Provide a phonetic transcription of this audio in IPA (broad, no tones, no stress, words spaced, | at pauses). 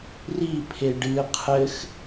ripʰe ɖɨ qʰɘx